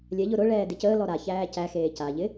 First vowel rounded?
no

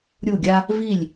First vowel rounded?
yes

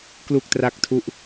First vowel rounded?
yes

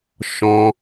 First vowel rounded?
yes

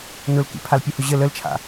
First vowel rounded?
yes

